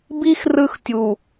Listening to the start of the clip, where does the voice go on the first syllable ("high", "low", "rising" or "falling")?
high